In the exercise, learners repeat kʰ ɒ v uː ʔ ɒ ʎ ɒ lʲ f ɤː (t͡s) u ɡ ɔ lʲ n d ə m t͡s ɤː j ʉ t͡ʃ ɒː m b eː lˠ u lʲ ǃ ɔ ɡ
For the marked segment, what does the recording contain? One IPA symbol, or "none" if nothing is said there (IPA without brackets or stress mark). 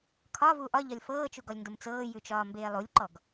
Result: t͡ʃ